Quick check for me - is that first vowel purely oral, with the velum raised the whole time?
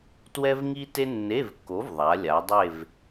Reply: yes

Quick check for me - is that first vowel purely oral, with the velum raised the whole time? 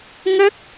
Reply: yes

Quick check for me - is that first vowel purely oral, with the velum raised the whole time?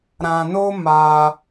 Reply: no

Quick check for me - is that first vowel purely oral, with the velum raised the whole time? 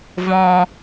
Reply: no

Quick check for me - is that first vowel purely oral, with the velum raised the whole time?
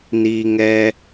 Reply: yes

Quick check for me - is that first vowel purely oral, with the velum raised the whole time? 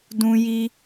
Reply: no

